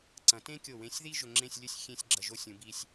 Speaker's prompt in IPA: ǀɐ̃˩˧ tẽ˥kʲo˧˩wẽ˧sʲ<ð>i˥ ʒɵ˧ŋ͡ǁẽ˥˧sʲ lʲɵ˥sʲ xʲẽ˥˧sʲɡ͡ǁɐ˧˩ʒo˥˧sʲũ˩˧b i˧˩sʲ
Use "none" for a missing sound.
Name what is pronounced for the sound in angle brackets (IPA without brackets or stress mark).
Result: ð